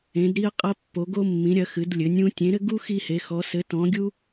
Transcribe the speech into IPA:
ẽ˨˦ d ɾ i˦ ə̯ qʼ ɐ˦ pː o˨˦ ɡ o˦ mː ĩ˨˦ ɾʲ ɐ˨˦ x ɨ˨˦ d lʲ ɘ˨˦ nʲ ũ˦ tʲ ẽ˨˦ ɾ ɘ˦ ɡ u˦ x i˦ h e˨˦ x ɔ˨˦ s ɘ˨˦ t ɔ̃˨˦ ɡʲ u˦

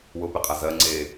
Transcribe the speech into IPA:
w ʊ p e qʼ a z ɜ ŋ͡ǀ e

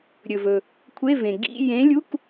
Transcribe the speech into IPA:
ɾʲ ɵ˩ v ɵ˩ | kʷʰ e˧˥˧ v ẽ˩ ɡ ḭ˧˥˧ j ẽ˨˥ lʲ u˧˥˧ k

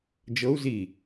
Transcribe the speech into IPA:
d͡ʒ ɤ u̯ z i

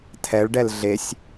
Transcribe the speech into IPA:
tʰ ɛ ɭ ɖ ɛ l ɮ e sʲ

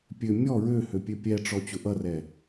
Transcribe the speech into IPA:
pʲ ø mʲ ɔ ɹ ø h ø pʲ ø pʲ ɛ ʈ͡ʂ ɔ t͡ɕ ʊ ʔ ʌ r ɛ

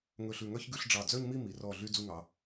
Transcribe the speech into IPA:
ŋ ɵ˧˩ ɬ ʉ˧˩ ŋ œ˥˧ ç ɡ ʉ˧ ɬ ɖ͡ʐ ɑ˧˩ d͡z œ˥˧ ɲ m i˥˧ m i˩˧ r ɔ˧˩ ɮ y˧ d͡z u˧ ŋ ɑ˩˧

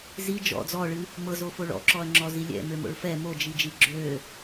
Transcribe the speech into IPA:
z i d͡ʒ ɔ̰ d͡z ɔ ɭ ɨ | m ɤ z o f o ɭ ɔ̰ ǁ ɔ ɐ̯ ŋ͡ǁ ɔ z i lʲ ɛ̰ m ø m o̰ ɭ f ɛ m o d͡ʒ i d͡ʒ i ɡ͡ǁ ø

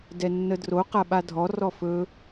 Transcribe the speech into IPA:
d ɛ nː ə d r o q a ɓ a dʱ ɔ r ɔ f ɵ

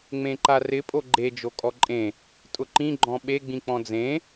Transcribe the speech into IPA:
ŋ͡m ẽ ǃ a r ɪ pʼ o ɡ͡ǃ e d͡ʒ o kʼ ɔ ǃʼ ẽ | tʼ ʊ ǃ ĩ ɡ͡ǃ ɔ̃ ɓ e ɡ͡b ĩ k͡p ɔ̃ d͡z ẽ

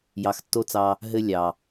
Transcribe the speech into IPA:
j ɑ˨ x tː o˦ t͡s ɑ˧ | ɦ ɘ˦ lʲ ɑ˨

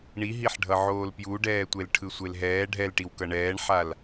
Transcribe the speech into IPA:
ɳ i ɦ i ħ ɖʱ ʌ ʕ oː l p j u ɖ ɛː tʷ e l ʈʰ ɯ sʷ e l ɦ ɛː ɖʱ ɛ l ʈ i w k ʌ ɳ ɛː ɳ ħ a l

